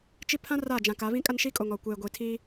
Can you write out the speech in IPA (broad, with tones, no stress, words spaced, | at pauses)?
t͡ʃi˦ pʰã˦ raː˦˨d͡ʒã˨ka˨˦ βĩ˦kʼa˦nʃi˦kʼo˨ŋ ɔ˨ kʷeː˨ɡʷi˨tʰiː˦